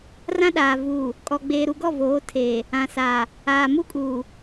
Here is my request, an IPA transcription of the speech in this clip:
r ã˦ ɗ aː˨ v uː˨ | kʼ ɔ˨ ɡ͡b eː˨ ɾ u˨ ɡ ɔ˦˨ v oː˨˦ tʰ eː˨ | ã˨ s aː˨ | aː˨ m u˦ kʼ uː˨

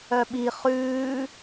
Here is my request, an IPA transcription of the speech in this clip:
œ ɓ i χ ʉː

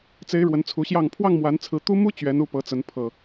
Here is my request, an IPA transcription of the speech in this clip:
t͡s e˨˦ ɪ̯ ɻ w ə˨˦ n t͡sʰ u˨˦ ɕ j ɑ˥˨ ŋ pʰ w ɑ˥˨ ŋ m w a˨˦ n t͡sʰ ɹ̩˨˦ t̪ u˦ m u˦ t͡ɕ ɥ ɛ˨˦ n u˥˨ p ɤ˨˦ t͡s ə˨˦ n pʰ ɤ˨˩

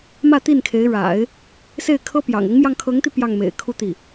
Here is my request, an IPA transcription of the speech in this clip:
m ä˥˧ t̪ i˥˩ n kʰ e˧˥ ɪ̯ ɻ a̰˨˩˦ ɪ̯ | s e˥˩ ɪ̯ kʰ ɤ˥ p j ɑ̰˨˩ ŋ ʊ˧˥ ŋ m j ɑ˧ ŋ kʰ ɤ˧˥ ŋ t̪ i˧ p j ɑ˥˩ ŋ m ḛ˨˩ ɪ̯ kʰ u˥ t̪ i˥˩

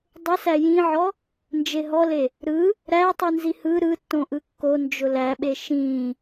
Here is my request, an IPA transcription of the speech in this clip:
dˤ ʊ s æ j ĩ ʕ ɔ | n d͡ʒ e ɦ ɔ l e | ɾ ɯ | ɾ æ tˤ ɯ n z i h ɯ ɾ ɯ tː õ ʔ ɯ kː o n d͡ʒ ʊ l æ ɓ e ʃ ĩ

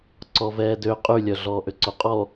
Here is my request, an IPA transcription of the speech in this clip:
ǀ ɔ v ɛː d ø qʼ y lʲ œ ɮ ɔː ʔ ø ǀ o qʼ ɔ

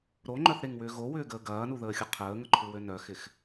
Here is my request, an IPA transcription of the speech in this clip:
ɾ o ŋ͡ǃ œ θ ɾ e ŋ w ʏː ɣ o w ʏː ɡ əː ɡ ɐː n u ð əː xʲ ʊ qʰ əː ŋ ə ǃʰ u w ø n œ x ɪ x

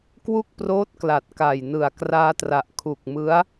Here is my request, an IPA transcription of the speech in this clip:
k w u˥˩ k̚ p r oː˦˥ t̚ k l a˨˩ t̚ k a˨˩ j n ɯ˨˩ a̯ k r aː˧ t r a˨˩ ʔ kʰ u˨˩ k̚ m ɯ˦˥ a̯

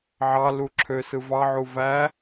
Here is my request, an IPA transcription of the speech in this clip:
ʕ ɑ l u ǁʰ ø s ɯ v ɑ ʕ u v æ

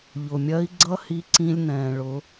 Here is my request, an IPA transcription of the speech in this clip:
ʎ ʊ˩ mʲ ɜ˧˥ i̯ ɡ͡ǀ ʌ˥ h i˧˥ ǀ ĩ˧ lʲ n ɛ̃ː˩ ɭ ʊ˩˧

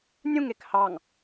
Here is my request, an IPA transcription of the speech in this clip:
nʲ ũ ŋ e k h ɑ ŋ

